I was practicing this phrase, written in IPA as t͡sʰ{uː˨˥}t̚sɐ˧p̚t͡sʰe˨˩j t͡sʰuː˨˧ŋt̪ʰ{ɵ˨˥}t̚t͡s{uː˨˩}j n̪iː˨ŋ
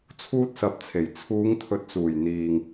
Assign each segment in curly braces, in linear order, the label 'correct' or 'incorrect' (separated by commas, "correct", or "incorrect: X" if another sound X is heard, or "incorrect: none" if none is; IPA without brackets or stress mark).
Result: incorrect: uː˥, correct, correct